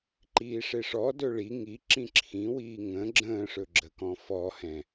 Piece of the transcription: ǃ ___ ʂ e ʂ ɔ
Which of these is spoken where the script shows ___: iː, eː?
iː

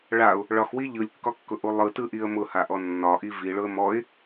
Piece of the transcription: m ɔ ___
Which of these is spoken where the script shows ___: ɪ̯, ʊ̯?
ɪ̯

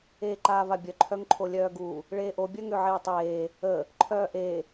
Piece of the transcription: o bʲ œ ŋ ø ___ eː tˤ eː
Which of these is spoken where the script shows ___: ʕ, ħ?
ʕ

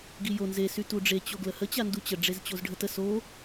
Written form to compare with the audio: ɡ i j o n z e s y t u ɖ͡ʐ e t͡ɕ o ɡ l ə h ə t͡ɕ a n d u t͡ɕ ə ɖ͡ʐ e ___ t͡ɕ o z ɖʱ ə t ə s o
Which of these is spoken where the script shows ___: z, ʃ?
z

